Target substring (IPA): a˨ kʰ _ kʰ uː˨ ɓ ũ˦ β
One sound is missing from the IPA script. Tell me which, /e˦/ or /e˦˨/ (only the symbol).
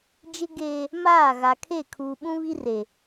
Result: e˦˨